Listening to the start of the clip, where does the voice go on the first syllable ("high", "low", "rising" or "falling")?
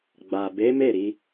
low